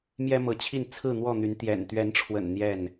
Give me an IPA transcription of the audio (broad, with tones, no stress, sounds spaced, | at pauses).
m j ɛ˦ m ɤ˨˦ t͡ɕʰ i˥˨ n t͡sʰ ɹ̩˥˨ n̪ w ɔ˥˨ n̪ y˨˦ n t̪ j ɛ̰˨˩ n t̪ ɥ ɛ˨˦ n ʈ͡ʂʰ w ə̰˨˩ n n̪ j ɛ˥˨ n